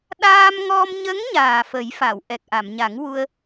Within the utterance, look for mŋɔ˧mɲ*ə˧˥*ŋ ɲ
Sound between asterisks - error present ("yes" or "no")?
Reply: no